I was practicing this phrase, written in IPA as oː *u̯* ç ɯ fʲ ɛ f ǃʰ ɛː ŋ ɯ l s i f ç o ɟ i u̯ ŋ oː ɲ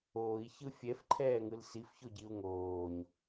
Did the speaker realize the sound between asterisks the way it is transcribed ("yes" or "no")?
no